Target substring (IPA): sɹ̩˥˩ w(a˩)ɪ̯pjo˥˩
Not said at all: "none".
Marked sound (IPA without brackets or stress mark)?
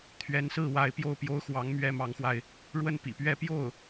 a˧˥